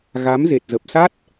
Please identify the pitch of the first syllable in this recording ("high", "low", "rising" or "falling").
rising